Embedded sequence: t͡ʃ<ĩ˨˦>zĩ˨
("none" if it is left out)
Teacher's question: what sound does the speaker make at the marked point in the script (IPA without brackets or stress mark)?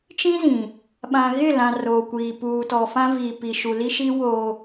ĩ˦